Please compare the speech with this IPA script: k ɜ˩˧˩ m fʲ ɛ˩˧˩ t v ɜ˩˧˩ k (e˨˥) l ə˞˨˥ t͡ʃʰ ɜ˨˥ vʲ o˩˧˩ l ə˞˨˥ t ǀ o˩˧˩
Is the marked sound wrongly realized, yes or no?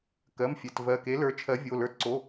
no